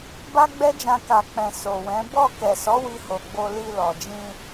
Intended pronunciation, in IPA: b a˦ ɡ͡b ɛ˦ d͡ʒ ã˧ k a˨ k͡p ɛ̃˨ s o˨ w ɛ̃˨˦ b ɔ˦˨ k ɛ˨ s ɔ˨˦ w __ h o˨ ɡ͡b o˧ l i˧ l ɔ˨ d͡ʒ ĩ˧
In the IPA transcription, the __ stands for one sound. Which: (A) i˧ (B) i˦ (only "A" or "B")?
A